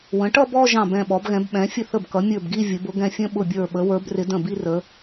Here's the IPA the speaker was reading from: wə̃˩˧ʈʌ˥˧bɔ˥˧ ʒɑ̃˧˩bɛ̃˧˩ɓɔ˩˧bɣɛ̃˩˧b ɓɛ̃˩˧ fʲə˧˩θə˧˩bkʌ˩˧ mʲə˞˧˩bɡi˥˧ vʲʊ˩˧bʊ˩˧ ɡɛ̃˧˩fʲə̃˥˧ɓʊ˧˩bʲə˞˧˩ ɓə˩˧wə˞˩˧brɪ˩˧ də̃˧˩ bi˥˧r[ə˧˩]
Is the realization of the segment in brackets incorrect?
yes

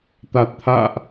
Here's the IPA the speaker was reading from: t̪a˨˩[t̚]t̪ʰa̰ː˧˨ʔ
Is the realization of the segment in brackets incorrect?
no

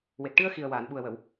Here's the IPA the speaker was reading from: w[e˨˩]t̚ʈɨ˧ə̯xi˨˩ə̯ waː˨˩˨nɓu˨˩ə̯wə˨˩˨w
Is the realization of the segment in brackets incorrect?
no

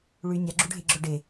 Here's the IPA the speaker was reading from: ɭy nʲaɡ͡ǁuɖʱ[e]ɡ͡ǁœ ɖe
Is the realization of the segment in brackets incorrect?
no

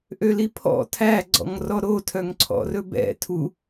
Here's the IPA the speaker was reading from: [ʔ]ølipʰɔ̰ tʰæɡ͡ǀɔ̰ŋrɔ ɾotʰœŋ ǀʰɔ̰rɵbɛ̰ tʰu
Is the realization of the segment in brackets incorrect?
no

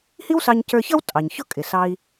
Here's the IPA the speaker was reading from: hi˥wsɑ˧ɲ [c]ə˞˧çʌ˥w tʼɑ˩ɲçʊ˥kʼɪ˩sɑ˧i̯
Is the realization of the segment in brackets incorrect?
no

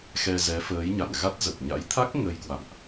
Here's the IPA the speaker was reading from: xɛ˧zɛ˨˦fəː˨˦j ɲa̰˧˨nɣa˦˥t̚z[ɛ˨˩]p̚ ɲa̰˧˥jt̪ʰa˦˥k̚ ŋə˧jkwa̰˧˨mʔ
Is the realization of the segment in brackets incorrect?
yes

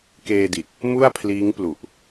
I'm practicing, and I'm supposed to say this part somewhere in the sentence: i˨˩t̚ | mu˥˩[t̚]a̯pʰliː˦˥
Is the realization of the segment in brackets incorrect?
yes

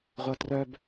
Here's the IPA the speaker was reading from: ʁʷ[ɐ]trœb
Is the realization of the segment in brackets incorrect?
no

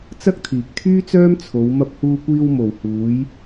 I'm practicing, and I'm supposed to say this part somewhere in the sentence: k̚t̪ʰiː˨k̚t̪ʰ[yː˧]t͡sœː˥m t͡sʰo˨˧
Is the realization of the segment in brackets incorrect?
yes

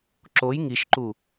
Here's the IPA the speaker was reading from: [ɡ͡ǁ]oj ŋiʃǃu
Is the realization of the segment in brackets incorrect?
yes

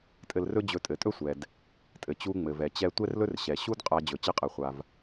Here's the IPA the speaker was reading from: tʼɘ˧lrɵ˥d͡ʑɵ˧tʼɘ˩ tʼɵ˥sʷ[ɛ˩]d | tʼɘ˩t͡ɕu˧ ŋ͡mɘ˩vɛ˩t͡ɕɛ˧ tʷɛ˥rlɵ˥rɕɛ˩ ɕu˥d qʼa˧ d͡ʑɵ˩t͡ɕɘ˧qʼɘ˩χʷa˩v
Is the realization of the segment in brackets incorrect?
no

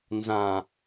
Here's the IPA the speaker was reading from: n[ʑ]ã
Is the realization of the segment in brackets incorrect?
yes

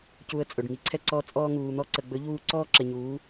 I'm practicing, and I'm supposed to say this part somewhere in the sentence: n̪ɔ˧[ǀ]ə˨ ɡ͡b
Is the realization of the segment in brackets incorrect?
no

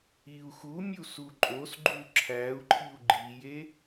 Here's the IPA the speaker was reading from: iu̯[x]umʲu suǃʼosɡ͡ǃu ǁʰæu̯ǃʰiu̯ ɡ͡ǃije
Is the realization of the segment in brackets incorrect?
no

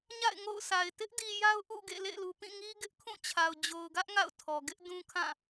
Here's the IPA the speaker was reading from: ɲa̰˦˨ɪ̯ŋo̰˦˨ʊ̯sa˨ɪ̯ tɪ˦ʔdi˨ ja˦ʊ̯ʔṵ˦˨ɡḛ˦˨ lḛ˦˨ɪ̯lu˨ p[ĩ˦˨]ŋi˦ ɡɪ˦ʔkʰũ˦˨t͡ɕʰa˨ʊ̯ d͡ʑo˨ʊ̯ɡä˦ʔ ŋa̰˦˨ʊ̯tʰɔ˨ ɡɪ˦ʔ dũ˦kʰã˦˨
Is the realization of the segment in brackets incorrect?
no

